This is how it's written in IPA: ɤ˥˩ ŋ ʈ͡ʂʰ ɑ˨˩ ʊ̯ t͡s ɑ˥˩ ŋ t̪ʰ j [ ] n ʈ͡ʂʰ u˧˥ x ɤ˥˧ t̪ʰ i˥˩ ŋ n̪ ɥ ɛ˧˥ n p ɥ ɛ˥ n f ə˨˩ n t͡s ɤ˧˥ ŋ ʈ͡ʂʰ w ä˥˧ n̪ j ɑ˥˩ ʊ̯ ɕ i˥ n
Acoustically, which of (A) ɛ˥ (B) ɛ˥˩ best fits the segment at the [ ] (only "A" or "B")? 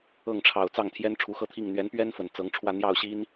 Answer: A